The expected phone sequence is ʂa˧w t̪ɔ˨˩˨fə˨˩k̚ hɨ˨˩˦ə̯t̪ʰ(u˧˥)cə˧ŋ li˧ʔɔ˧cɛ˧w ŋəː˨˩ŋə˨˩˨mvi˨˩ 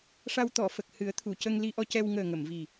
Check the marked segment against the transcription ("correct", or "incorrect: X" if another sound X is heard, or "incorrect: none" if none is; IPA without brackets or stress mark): incorrect: u˨˩˨